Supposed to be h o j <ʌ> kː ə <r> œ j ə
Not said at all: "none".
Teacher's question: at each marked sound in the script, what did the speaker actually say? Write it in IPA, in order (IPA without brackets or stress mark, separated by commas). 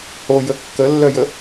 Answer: ə, lː